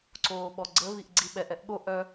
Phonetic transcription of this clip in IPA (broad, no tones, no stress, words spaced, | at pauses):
ǀoːɓɔɡ͡ǀə βiʔɡ͡ǀiɓɛʔ ɛʔɠo ʔœ